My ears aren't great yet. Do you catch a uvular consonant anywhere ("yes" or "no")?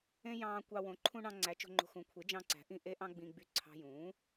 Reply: no